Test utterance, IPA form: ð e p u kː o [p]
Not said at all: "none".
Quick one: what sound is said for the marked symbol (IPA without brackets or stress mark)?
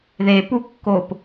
p